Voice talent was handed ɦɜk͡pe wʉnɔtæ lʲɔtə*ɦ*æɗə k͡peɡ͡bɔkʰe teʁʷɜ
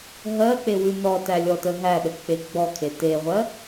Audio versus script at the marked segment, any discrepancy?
no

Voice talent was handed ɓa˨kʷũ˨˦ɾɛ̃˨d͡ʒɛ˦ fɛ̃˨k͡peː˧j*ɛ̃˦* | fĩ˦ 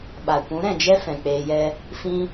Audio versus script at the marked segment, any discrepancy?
yes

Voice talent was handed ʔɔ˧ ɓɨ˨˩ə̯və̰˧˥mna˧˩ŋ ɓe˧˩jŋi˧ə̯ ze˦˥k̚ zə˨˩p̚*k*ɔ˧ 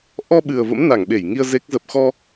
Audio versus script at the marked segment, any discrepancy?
yes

